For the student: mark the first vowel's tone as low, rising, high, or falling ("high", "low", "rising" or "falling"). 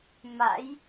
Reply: rising